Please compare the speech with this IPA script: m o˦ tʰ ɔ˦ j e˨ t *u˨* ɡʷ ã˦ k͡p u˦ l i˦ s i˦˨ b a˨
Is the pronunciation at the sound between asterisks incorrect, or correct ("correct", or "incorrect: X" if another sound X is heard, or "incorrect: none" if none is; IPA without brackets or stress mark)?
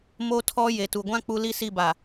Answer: correct